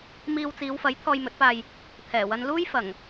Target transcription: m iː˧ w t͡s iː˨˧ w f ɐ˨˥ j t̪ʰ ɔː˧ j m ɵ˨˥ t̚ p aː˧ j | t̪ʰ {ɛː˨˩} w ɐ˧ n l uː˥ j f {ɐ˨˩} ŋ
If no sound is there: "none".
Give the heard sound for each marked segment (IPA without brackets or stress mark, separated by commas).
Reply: ɛː˨˩, ɐ˨˩